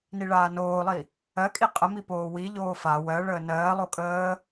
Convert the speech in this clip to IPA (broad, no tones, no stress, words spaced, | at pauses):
niɭaːnoːlˠi | ɜkʼi qʼəmi poːwi ʎoːfa wɜɭəː nɜːlˠo kʼəː